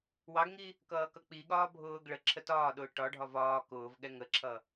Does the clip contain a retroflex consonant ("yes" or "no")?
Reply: yes